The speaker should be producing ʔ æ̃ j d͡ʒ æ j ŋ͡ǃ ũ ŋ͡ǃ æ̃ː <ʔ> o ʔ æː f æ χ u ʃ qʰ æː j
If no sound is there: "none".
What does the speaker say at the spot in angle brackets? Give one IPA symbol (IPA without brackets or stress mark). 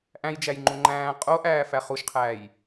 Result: qʼ